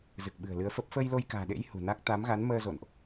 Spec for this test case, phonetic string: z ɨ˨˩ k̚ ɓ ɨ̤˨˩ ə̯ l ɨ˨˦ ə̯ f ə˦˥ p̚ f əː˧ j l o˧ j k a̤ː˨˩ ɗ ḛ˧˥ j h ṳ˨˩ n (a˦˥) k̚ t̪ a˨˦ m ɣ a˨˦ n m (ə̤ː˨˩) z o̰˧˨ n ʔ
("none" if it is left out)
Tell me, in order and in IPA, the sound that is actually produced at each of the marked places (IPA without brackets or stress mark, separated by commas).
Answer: a˦˥, əː˧